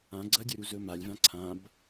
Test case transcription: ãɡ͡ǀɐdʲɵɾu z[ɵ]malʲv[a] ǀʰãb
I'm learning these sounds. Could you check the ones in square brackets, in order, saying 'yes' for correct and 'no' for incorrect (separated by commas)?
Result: yes, no